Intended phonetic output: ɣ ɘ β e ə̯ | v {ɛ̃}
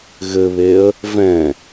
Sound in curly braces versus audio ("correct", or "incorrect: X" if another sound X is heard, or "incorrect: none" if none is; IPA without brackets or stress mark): correct